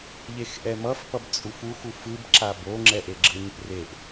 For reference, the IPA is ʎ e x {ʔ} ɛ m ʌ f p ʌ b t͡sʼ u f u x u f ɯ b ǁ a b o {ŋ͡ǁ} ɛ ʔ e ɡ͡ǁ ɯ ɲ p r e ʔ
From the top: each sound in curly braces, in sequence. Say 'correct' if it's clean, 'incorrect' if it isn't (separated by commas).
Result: correct, correct